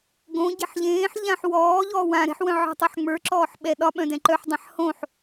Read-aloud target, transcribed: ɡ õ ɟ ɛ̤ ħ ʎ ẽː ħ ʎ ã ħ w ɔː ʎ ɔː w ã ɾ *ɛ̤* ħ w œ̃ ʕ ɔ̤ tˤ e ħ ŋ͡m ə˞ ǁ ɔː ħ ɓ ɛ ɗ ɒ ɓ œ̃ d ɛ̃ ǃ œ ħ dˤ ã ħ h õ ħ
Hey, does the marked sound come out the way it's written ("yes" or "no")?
yes